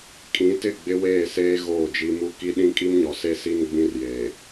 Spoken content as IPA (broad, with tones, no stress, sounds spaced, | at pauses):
kʼ ĩ˨˦ t ɪ˦˨ ɡ͡b ɪ˦ w eː˦˨ s eː˦ ɣ oː˦˨ d͡ʒ i˦ m u˦ k i˦ ɗ ĩ˦ kʼ i˦ m ɲ ɔ˨ s e˦ s i˦ n ɡ͡b ĩ˦ r j eː˨